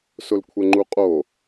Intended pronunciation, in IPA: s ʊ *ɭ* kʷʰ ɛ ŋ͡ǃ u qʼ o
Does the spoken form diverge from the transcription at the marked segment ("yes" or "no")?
yes